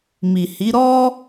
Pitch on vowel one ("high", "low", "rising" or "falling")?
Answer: low